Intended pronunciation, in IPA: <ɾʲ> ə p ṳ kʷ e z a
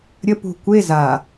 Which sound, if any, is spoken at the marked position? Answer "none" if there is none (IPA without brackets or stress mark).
ɾʲ